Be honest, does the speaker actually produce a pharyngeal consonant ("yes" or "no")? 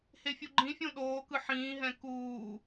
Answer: yes